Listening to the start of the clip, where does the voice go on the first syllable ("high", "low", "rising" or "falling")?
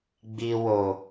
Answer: low